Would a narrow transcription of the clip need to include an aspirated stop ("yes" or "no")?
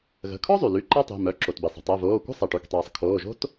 yes